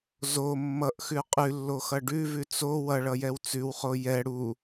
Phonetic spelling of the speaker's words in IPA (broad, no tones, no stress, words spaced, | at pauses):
zo mːʌʔxʉ qʼʉlːoxʌ ɖʉvʉ t͡so wʌɭʌjɛw t͡sʉwχo jɛ ɽu